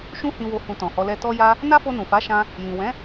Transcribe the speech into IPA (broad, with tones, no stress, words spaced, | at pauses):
ʃũ˦hĩ˧wo˧ hũ˧tɔ̃˨hɔ˧ lɛ˧ tɔ˦ja˦ | na˦fo˧ nũ˨fa˨˦ʃã˧ | jĩ˨wɛ̃˨˦